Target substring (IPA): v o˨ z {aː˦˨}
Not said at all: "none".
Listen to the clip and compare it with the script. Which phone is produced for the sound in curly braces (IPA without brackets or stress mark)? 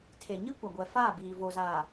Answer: aː˨